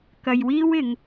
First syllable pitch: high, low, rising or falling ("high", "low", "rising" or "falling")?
low